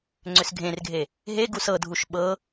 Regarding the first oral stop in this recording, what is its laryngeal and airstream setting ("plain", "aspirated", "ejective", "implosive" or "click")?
click